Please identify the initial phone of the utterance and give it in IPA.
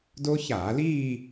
d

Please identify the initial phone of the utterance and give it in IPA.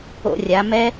o̰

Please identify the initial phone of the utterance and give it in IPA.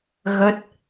ɣ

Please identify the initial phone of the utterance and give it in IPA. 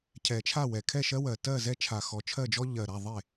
cʰ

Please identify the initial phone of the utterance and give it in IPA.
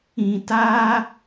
ĩ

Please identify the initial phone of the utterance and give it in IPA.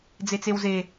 d͡z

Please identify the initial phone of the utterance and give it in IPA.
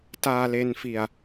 t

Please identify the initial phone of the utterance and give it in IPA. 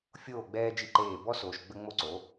fʲ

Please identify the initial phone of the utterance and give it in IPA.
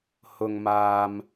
h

